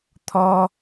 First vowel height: mid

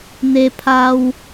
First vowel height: mid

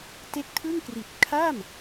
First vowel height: mid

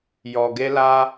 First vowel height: mid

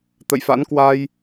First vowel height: mid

